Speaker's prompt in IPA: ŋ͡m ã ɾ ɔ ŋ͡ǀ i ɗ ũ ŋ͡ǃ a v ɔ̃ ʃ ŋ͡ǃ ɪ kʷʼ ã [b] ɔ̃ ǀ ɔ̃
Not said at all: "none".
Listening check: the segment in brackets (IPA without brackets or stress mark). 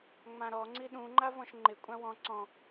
w